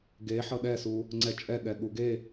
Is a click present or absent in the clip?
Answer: present